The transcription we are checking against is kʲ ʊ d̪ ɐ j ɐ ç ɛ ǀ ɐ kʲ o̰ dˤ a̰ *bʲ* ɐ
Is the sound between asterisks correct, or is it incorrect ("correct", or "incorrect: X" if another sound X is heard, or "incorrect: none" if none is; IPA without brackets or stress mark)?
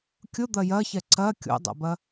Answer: incorrect: b